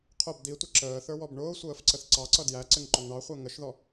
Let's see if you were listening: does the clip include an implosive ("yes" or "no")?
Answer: no